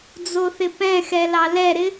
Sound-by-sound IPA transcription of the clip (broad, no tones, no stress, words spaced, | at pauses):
d͡zoθɪpɛ̃xɛ lɑlɛɾɪ